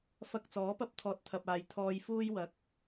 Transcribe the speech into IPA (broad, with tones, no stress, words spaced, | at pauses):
fɐ˧k̚ t͡sɔː˨˥pɐ˥p̚t̪ʰɔː˨t̚ t̪ʰɐ˨p̚aː˨j t̪ʰɔː˧jfuː˥j wɐ˨˥k̚